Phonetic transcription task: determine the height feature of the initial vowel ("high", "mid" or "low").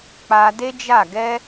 low